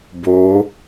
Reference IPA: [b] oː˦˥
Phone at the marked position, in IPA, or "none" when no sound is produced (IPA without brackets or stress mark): b